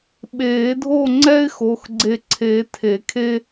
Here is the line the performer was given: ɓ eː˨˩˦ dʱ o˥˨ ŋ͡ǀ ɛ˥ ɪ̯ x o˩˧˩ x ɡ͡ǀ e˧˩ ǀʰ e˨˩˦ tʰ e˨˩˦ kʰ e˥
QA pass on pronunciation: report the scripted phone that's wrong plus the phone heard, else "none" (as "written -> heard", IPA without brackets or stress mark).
none